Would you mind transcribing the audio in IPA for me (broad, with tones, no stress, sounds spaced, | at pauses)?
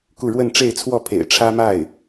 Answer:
k u˥˧ ɻ w ə˥˧ n ʈ͡ʂ e˥˧ ɪ̯ t͡sʰ w ɔ˥˩ pʰ ḛ˨˩ ɪ̯ ʈ͡ʂʰ ä˥ m a˥˩ ɪ̯